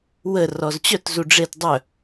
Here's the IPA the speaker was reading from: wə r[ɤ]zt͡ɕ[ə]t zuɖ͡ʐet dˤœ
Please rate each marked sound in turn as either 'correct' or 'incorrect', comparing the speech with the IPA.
incorrect, incorrect

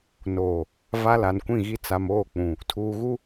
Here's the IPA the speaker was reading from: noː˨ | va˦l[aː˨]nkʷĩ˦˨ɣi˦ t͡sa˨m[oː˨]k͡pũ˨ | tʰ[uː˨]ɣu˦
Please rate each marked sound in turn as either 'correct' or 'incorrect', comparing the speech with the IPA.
incorrect, incorrect, correct

